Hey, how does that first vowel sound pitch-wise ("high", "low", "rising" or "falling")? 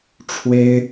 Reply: high